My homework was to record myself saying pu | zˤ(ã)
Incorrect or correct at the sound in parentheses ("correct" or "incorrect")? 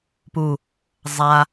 incorrect